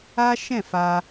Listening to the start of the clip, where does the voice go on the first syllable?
high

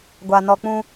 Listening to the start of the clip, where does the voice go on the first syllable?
low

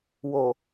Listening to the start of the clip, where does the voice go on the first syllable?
low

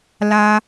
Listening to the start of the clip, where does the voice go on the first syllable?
high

